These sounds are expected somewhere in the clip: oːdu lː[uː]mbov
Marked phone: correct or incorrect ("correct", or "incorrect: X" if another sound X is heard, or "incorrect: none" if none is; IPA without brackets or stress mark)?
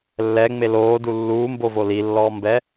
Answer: correct